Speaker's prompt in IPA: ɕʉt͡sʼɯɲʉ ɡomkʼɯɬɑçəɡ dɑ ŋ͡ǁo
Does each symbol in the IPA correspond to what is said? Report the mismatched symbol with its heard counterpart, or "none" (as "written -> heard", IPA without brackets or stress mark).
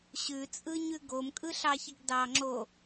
none